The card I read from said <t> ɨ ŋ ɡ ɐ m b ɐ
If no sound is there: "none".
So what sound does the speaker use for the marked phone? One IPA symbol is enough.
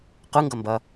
q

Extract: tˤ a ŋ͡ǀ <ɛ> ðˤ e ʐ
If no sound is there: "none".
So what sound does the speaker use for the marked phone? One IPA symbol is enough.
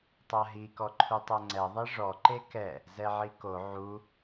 ɛ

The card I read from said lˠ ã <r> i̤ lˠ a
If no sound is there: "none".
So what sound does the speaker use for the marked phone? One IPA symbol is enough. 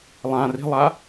r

